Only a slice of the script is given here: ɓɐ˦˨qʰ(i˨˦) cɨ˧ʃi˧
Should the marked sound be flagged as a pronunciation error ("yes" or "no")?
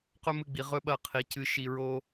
no